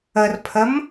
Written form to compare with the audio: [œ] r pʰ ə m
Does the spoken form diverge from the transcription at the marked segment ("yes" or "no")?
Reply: yes